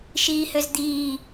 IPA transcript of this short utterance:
ʃ iː h ø z d̪ iː

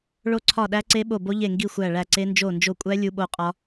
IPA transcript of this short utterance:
ɭ o˦˥ ǀʰ ɒ˦˨ ɗ æ˦˥ ǀ e˦˥ ɓ o˦˨ b o˦˥ ʎ e˦˨ ŋ ɡ i˦˨ xʷ æ˦˨ ɭ æ˦˨ ǀ e˦˥ n d͡ʒ o˦˨ n d͡ʒ o˦˨ kʷʼ æ˦˥ lʲ u˦˥ ɓ o˦˥ qʼ ɒ˦˥

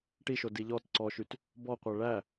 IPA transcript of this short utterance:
ʈ i ʃ o d i ʎ ɔ t ǀ ɔ ʃ y t | b ɔ qʷ æ ɭ æ

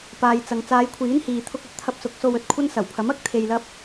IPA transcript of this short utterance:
p aː˨ j t͡s ɐ˨ ŋ t͡s aː˨˧ j kʷʰ iː˨˥ n h iː˨ t̪ʰ ʊ˧ k̚ ɐ˧ t̚ t̪ʰ ɐ˧ p̚ s ʊ˨˥ k̚ s o˧ w ɵ˨ t̚ kʷʰ ɐ˥ n s ɐ˨˩ w pʰ ɐ˨˥ m ɐ˥ k̚ t̪ʰ e˧ j l ɐ˥ p̚

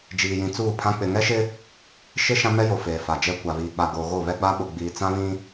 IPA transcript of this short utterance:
d͡ʒ iː˨ j ĩ˨ t͡s uː˦˨ pʰ ã˦ k͡p ɪ˨ ŋ ɛ˦ ʃ ɪ˦ | ʃ ɪ˦ ʃ ã˦ m ɛ˦ j o˨ f eː˨ f a˨ d͡ʒ ɛ˦ kʷ a˨ β iː˨ k͡p a˨ ɡ oː˨ ɣ o˦˨ β ɛ˦ ɡ͡b a˦ ɓ ʊ˨ ɡ͡b iː˨ t͡s ã˦ β ĩ˦

